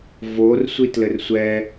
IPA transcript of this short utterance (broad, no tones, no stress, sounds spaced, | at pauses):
v o r sʷ i t l ɘ r sʷ ɛ